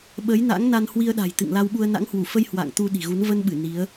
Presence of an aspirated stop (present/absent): absent